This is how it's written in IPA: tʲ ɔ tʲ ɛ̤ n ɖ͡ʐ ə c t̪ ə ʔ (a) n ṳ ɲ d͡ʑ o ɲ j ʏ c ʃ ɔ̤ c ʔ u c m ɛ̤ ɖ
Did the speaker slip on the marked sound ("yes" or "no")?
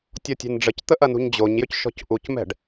yes